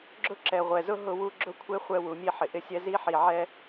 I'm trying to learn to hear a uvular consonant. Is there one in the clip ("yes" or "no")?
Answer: yes